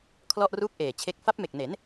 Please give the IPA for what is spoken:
kʰ l ɔ˥˩ ʔ r uː˥˩ k̚ ʔ eː˨˩ t͡ɕʰ e˦˥ k̚ f a˦˥ p̚ m e˨˩ k̚ n e˩˦ n

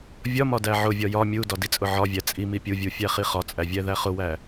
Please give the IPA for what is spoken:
vʲ ɒ m ɒ d æ ʕ ʊ vʲ ɒ j ɒ mʲ u d ɒ d i t͡sʼ ʊ ʕ ɒ vʲ æ t͡sʼ i m i pʲ u vʲ u fʲ æ χ i χ ɒ t͡sʼ æ vʲ æ ð æ χ ʊ w æ

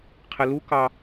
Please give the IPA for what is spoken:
qʰ ɪ l u k ɑ

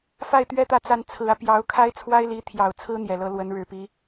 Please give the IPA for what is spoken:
f a˥˩ ɪ̯ t̪ ɥ ɛ˥ t̪ ä˥˩ t͡s a˥ n t͡sʰ ɹ̩˧˥ ä˧ p j ɑ˧˥ ʊ̯ kʰ a˥ ɪ̯ t͡sʰ w a˥ ɪ̯ l i˧˥ t̪ʰ j ɑ˨˩ ʊ̯ t͡sʰ ɹ̩˥ n̪ j ɛ˨˩ l ɤ˧˥ l w ə˧˥ n ɻ ɻ̩˨˩ p i˧˥

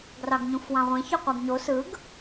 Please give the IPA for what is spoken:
ɡ r ɑ ɡ ɲ ũ f w ɑ̃ ʁʷ ẽ ç ø qʷ æ ɡ ɲ o s ɯ ɡ

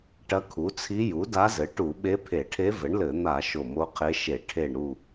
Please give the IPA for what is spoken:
ʈ ɐ˧˥ kʰ u˩˥ t͡sʰ i˧˥ j u˩˥ d a˧˥ z ɘ˩˥ ʈ u˧˩˧ ɓ e˧˥ pʰ e˧˩˧ ʈʰ e˧˥ v ɘ˩˥ ɳ l ɘ˧˩˧ n̪ a˧˩˧ ʃ o˧˩ m o˧˥ qʰ e˧˥ ʃ e˧˩˧ ʈʰ e˧˩ ɳ ɾ u˧˩

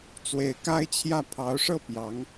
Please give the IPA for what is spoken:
t͡s w e˧˥ ɪ̯ k a˥ ɪ̯ t͡ɕʰ j ä˥˩ pʰ ɑ˧˥ ʊ̯ ʂ ɤ˥˩ p j ɑ˧˥ ŋ

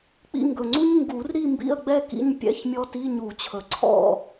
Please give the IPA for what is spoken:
k͡p ḭ˧ ŋ ɡ ɵ˨˩ ŋ͡ǀ u˦˥ ɲ ŋ ɡ u˨˩˦ r ɾ i˥˨ m b ḭ˥˨ ɐ̯ ɡ͡b ɛ˥˨ k ḭ˧˥˧ ɲ pʲ ɛ̰˧˥˧ ç mʲ ɔ˦˥ t i˧˥˧ ɲ u˨˩˦ t͡ɕʰ ɵ˨˩ ǀʰ ɔ̰˥˨

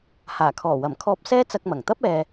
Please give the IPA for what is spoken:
h aː˨˩ kʰ ɔː˨˩ w ɐ˨˩ m kʰ ɔː˧ p̚ s ɛː˥ t͡s ɐ˧ k̚ m ɐ˨˩ ŋ t̪ ɐ˥ p̚ ɛː˨

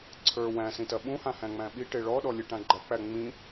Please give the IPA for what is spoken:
ǀʰ ə˞ w æ̃ s ĩ t ɐ ɓ ũ h ã h æ̃ ŋ͡m æ̃ ɓ i ʈ e ɭ ɔ ɗ ɔ lʲ e ʈ ã ɡ͡ǃ ɐ k͡p æ ŋ͡m ĩ

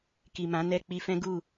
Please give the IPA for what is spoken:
k i˨ m ã˨˦ n ɛ˦˨ k͡p i˧ f ɛ̃˦ ɡ u˦˨

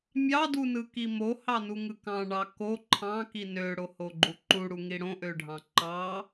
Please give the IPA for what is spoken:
mʲ ɑ d u n ɯ k i m o h ɑ n u ŋ ɯ k ɑ̃ ɳ ɑ k o ǃʰ ɑ̃ k i n ø ɽ o h o ɡ͡ǃ u ǃ u ɽ u ŋ i ɽ õ ʔ ø ɖʱ ɑ̃ ǃ ɑ

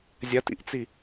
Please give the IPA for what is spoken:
zʲ ɐ t ḭ ʔ t͡s i

